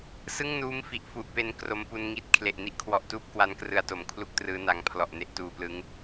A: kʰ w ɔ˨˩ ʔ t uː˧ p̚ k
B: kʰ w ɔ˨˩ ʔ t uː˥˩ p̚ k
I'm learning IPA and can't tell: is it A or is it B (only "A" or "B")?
B